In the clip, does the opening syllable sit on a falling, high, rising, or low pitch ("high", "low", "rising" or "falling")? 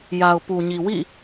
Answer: low